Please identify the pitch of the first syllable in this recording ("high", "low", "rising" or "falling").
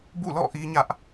falling